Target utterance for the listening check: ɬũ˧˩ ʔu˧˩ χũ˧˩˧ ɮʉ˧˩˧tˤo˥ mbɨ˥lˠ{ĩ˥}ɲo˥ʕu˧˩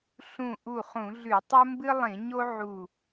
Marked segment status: incorrect: ĩ˧˩˧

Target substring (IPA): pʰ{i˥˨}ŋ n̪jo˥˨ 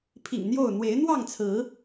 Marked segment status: incorrect: ḭ˨˩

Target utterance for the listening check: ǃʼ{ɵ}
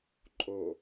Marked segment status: incorrect: o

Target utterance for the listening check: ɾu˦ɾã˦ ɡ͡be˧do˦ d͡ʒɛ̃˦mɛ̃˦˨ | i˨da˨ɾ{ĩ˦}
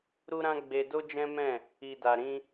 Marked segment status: incorrect: ĩ˧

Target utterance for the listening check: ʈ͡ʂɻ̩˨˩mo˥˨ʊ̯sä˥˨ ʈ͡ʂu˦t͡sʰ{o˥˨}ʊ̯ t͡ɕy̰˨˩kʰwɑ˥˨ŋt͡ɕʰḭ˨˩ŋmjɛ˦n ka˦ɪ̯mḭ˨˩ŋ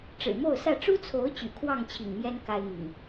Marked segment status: incorrect: o˨˦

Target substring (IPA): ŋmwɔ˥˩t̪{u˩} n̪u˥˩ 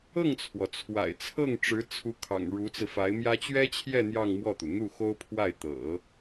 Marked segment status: correct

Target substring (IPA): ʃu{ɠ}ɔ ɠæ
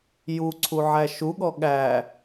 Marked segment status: correct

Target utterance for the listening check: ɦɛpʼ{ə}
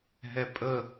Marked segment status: correct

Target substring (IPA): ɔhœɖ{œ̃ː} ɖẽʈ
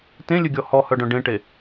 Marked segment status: incorrect: œ̃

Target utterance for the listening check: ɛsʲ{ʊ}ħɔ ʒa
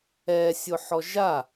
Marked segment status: correct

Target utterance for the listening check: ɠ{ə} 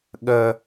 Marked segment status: correct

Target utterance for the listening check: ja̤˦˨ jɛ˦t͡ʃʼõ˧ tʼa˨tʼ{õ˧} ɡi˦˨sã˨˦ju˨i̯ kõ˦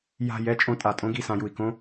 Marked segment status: incorrect: õ˦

